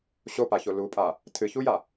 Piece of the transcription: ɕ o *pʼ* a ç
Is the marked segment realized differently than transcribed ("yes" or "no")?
yes